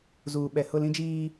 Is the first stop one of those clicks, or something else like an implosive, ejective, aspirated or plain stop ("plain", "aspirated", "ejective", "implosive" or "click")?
implosive